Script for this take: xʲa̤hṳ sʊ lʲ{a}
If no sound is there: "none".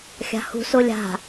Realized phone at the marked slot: a̤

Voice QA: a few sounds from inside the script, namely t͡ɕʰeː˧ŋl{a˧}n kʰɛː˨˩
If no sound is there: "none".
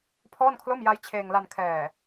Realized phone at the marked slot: a˧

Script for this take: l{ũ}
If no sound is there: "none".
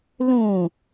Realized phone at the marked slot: ũ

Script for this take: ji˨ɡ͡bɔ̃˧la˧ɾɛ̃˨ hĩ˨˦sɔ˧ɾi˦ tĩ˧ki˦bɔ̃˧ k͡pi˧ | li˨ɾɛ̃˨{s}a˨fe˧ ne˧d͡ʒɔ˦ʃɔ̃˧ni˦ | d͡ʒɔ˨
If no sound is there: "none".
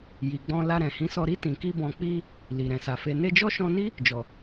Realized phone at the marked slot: s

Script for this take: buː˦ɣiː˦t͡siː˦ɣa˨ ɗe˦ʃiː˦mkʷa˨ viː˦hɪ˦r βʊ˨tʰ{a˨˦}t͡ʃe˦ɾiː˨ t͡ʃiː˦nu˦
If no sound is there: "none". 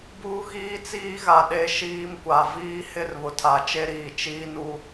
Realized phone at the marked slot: a˨˦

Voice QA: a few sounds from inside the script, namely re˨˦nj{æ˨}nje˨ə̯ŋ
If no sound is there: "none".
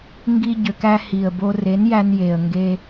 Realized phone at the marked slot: æ˧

